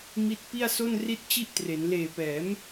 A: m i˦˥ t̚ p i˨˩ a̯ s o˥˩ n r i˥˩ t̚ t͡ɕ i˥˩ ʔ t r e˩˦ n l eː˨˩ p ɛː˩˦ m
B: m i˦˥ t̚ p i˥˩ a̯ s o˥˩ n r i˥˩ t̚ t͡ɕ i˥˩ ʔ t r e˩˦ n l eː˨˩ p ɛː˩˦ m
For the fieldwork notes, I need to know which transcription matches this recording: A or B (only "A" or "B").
B